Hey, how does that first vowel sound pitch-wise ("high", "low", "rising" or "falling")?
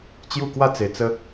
falling